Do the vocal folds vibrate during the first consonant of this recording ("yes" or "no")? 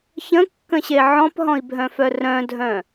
no